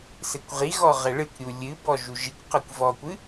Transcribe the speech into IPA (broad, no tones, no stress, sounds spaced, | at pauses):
s ɘ kʷ ʁ i ɣ ɔ ʁ ɛ ɭ ɨ kʷ ɾʲ u lʲ ɨ b ɔ ʒ u ʒ i kʷ q ɐ kʷ v ɔ kʷ ɨ